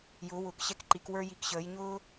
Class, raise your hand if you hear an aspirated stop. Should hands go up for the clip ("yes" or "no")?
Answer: no